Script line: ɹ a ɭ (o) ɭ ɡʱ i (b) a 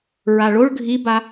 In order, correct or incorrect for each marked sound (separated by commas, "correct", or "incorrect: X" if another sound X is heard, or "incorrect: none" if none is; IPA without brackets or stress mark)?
correct, correct